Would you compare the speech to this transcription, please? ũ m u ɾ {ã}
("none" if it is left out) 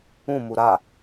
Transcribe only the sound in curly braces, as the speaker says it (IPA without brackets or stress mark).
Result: a